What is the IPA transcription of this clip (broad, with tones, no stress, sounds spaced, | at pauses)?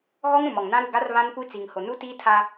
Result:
ɣ ɔ˦ ŋ ɾ ũ˨ m ɔ˨ ŋ n ã˦ ɾ u˨ ɡ a˦ r β ã˦ n kʷ i˦ t͡s i˨ ŋ h o˨ n u˦ t iː˦ tʰ a˦